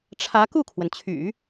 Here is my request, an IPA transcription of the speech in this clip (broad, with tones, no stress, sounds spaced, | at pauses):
ʈ͡ʂʰ ä˧˥ k u˥˩ kʰ w ə˩ n t͡ɕʰ y̰˨˩˦